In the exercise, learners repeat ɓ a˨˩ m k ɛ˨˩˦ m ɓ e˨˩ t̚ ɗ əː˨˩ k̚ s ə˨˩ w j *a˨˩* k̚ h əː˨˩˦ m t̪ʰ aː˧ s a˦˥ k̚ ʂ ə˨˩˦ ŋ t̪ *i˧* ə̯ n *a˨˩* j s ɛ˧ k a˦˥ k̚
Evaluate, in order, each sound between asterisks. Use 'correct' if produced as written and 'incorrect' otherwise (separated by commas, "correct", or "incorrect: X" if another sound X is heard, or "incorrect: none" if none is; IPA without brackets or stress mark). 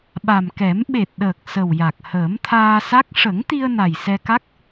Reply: correct, correct, correct